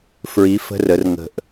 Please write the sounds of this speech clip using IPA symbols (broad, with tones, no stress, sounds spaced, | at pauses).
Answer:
f ɹ i˨˥ f ə̤˧˥˧ r ə˩˧ r ŋ ə̤˨˩ ʔ